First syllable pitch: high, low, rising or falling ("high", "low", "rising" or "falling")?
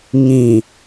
low